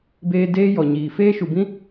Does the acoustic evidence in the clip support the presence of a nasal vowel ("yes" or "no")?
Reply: yes